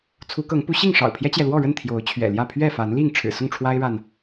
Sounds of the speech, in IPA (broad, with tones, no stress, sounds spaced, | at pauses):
t͡sʰ u˨˦ k ɤ˨˦ ŋ p u˨˦ ɕ i˥˨ ŋ ʂ ɑ̰˨˩ ʊ̯ pʰ j ɛ˦ t͡ɕ j ɛ˨ l w ɔ˥˨ ɻ ə˥˨ n t̪ʰ j o˨˦ ʊ̯ t͡ɕʰ ɥ ɛ̰˨˩ l j ä˥˨ pʰ ɥ ɛ˥˨ f a˨˦ n l i˥˨ ŋ ʈ͡ʂʰ ɻ̩˨˩ s ʊ˥˨ ŋ ʈ͡ʂʰ w a˦ ɪ̯ ɻ a˨ n